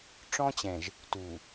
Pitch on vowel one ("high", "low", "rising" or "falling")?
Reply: high